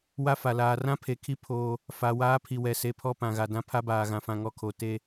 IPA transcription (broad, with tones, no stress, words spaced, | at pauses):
wa˦fa˨laː˨ rã˦pʰe˨kʰi˦ pʰoː˦ | fa˨ waː˦pʰi˨wɛ˨ se˨pʰɔ˦ pã˨ɣa˨dã˦ pʰa˦baː˨ɣã˨fã˨ ŋɔ˨kʰo˨ te˦